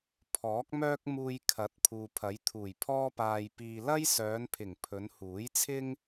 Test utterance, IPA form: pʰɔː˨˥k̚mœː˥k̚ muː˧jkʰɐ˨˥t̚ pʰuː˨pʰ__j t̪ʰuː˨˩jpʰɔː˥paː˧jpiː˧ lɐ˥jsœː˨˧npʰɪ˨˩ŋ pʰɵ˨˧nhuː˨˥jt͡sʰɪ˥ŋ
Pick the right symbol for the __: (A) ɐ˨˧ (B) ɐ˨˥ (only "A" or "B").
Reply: B